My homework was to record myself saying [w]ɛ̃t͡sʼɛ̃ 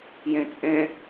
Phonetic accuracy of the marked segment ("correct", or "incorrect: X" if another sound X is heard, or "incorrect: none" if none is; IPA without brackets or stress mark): incorrect: j